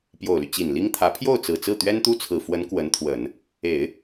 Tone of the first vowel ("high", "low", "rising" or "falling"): low